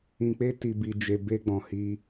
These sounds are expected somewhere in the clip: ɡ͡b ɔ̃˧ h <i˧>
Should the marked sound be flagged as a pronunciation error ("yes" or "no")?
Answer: yes